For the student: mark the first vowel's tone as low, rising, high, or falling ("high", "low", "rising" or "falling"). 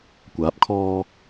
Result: rising